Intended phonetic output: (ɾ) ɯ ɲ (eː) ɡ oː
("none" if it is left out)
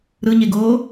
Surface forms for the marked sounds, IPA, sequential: ɾ, e

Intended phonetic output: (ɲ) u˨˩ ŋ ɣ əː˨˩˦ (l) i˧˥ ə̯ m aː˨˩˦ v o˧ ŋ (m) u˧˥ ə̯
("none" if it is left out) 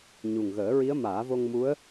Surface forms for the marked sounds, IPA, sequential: ɲ, ɹ, m

